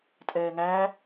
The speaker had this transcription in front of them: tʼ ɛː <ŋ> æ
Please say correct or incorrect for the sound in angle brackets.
correct